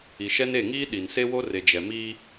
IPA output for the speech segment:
i˨ʃɛ˦n e˦˨ŋiː˦ ɗi˨nse˦wo˦re˨ d͡ʒɛ˨miː˦

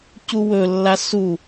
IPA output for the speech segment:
cuwɵlːa su

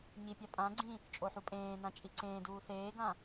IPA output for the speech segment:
ɲipʲa pʼãɡ͡ǀĩ | t͡ʃʼoħupʼẽːnã t͡ʃʼiǀẽːduː θeːɡã

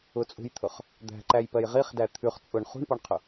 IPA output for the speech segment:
ʊt͡sʼṳjt̪ʰʊχ | d̪æ̤ǃæjpɜj ʁiχdæ t̪ʰʉχ t͡sʼʊɳ χṳɳpɔɳqʰʊ

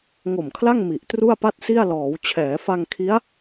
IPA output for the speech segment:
ŋo˨˩mkʰla˥˩ŋ mi˨˩ʔtru˥˩a̯pa˥˩t̚si˥˩a̯ lɔː˩˦wt͡ɕʰɛː˩˦fa˧ŋ kʰi˦˥a̯

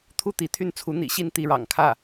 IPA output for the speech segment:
t̪ʰu˥˩ t̪i˧˥t̪ʰy˥˩nt͡sʰu˧˥ n̪ḭ˨˩ɕi˥˧n t̪i˥˩ɻɑ̰˨˩ŋkʰä˥˩

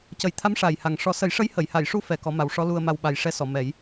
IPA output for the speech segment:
cə˨˩˦jt̪ʰa˧˥m ʂa˨˩jha˨˩ŋ ʂɔ˨˩˦sə˨˩˦jʂə˧˥j hə˨˩˨jha˨˩˨jʂu˧ fɛ˧kɔ˧˥ ma˨˩˦wʂɔ˧˥lu˧ə̯ma˧w ɓa˨˩jʂɛ˧sɔ˨˩˨ mɛ˨˩˦j

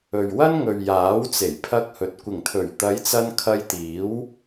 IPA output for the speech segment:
ɵ˨ɥwɐ˥nŋɵ˨ɥ jaː˨˥wt͡se˨˩jpʰɐ˧k̚hɵ˨t̚ kʷɪ˨˩ŋt̪ʰɵ˨˩ɥ t̪ɐ˨˧jt͡sɐ˧n kʰɐ˧jt̪iː˨˥w

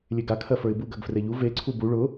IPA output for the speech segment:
lʲeɡa kʰɜfə˞ɪ̯buɡ ɜɡfreʎu ve ǀʰubu ɭʊ

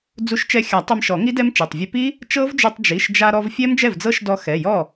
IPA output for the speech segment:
d͡zu˧ʃt͡ʃɛ˧xʲa˨˩˦ tˤɛ˧mʃɔ˨˩˦ŋi˦˥dɛ˦˥m t͡ʃe˩˧˩tˤvʲe˧pi˦˥ | t͡ʃɤ˦˥vd͡ʒu˧tˤ d͡ʒi˩˧˩ʃd͡ʒa˧ ɾɔ˧vfʲɛ˦˥m d͡ʒɛ˥˩vd͡zɤ˦˥ʃdɔ˧ xɛ˩˧˩jɔ˥˩

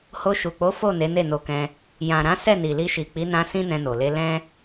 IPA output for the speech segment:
ho˧ʃu˨k͡po˨˦ fo˦˨ ne˨˦ne˦˨no˨˦kɛ̃˧ | jã˨ɾã˨˦ sɛ˦˨ni˨li˧ʃi˨ k͡pi˨˦nã˧ sĩ˦nɛ̃˧no˨le˧ lɛ̃˦

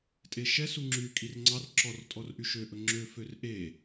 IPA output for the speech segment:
tʼeʃɛsu ŋ͡ǁy kʼirŋ͡ǀɑr ǁɔr tʼɔrʔyʃøʔɵ ŋ͡ǁø førʔe

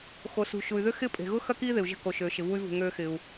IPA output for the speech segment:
xo˩sṳ˩ʃu˩y̯ðʏ˥ xɪ˥ pʼe̤˩ɣʊ˥ xɐ˥kiː˥ ðɪ˩u̯ʒə̤˧ ko˩ʃøː˩ʃɪ˩vu˧y̯ vṳ˩ŋøː˧xɪ˩u̯

